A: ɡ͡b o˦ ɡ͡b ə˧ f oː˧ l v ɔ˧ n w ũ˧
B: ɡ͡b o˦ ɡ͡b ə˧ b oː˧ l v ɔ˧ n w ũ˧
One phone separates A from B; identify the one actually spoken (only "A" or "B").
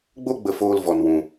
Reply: A